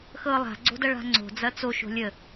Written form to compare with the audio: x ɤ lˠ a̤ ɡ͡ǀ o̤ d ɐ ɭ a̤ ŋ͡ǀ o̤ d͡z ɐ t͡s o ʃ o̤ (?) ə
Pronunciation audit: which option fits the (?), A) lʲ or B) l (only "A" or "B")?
A